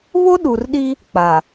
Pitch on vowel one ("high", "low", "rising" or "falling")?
high